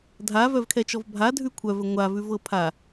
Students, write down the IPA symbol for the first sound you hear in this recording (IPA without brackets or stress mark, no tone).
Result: dʱ